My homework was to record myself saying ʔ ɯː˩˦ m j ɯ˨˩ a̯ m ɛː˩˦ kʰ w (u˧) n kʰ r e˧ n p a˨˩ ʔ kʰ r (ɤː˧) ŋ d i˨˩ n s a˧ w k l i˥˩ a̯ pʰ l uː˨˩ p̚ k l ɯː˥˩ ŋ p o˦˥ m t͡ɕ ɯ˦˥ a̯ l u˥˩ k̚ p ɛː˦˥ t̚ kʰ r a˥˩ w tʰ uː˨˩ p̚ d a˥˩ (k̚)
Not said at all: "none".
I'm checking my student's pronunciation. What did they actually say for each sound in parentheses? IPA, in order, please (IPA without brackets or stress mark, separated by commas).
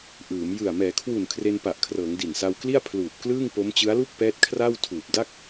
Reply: u˨˩, ɤː˩˦, k̚